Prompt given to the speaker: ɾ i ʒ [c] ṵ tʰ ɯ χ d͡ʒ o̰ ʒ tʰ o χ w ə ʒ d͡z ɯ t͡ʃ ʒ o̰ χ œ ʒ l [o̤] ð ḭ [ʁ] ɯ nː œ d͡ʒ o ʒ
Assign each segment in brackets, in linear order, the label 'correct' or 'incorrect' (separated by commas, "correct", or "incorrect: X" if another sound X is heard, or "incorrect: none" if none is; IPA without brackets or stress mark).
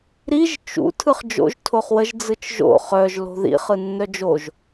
incorrect: t͡ʃ, correct, incorrect: χ